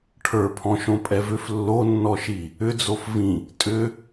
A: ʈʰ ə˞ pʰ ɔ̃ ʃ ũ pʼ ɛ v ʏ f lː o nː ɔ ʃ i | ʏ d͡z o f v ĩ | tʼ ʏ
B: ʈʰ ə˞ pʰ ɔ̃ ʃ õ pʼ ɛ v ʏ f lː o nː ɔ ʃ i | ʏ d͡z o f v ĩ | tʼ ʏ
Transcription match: B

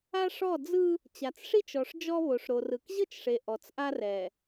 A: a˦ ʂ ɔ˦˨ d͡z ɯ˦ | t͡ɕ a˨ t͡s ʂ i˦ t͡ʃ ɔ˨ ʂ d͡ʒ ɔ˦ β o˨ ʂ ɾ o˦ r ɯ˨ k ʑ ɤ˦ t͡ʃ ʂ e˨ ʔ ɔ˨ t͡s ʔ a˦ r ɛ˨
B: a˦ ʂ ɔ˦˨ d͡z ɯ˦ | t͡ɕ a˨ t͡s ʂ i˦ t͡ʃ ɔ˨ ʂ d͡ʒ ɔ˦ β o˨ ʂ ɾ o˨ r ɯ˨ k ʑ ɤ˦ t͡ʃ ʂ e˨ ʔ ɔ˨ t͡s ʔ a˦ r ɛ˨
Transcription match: B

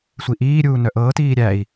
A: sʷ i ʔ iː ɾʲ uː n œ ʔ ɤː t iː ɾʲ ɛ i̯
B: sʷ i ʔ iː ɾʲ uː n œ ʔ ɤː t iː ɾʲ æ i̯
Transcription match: B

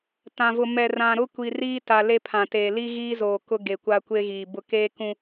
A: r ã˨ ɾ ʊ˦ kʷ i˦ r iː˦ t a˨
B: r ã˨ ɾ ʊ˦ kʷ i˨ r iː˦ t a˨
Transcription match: B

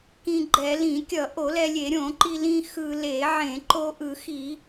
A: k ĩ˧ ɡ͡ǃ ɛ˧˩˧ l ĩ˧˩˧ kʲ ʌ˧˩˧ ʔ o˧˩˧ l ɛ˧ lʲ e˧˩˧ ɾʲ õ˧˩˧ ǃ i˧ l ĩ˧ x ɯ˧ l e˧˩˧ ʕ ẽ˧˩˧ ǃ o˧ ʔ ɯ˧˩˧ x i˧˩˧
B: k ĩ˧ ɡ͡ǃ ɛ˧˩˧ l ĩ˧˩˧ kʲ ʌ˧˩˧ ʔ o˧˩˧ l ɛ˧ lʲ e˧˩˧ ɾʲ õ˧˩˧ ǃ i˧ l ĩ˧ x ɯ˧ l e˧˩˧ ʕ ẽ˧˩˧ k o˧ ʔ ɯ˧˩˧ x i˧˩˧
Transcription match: A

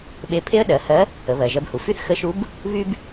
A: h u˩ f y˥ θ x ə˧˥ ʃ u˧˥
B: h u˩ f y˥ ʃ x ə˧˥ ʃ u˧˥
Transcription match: A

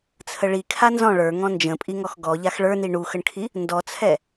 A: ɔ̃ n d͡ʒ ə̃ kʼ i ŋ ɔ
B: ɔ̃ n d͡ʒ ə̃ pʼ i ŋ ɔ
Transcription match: B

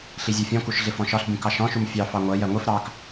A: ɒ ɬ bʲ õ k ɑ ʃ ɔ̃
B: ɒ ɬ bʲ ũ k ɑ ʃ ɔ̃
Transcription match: B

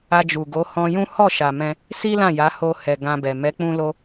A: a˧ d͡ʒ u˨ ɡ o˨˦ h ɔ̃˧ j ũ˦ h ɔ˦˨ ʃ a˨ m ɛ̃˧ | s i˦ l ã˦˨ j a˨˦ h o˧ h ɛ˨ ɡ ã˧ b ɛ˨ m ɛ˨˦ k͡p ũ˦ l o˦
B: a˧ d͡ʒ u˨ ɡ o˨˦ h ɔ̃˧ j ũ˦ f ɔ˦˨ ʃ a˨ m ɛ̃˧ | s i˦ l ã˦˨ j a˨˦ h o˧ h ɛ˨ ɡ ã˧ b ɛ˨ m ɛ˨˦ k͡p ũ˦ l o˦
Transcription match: A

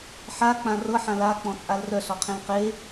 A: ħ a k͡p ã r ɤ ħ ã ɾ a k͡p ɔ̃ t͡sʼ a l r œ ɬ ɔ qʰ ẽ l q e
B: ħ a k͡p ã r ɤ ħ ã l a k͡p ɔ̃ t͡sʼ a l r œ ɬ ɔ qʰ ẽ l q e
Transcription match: B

